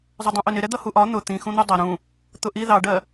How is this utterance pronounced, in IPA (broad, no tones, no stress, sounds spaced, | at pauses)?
zˤ ʊ dˤ ũ ʔ ʊ n ɪ ɾ ɛ d̪ ʌ h u ʔ ɒ n̪ ʊ t̪ ĩ x ũ n̪ u dˤ ʌ ɾ ũ | t̪ ʊ ʔ i ð ɑ ɖ ɜ